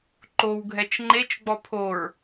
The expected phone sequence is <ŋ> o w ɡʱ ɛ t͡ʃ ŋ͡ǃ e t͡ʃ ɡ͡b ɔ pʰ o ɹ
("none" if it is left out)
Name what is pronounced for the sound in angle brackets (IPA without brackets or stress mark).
ǃ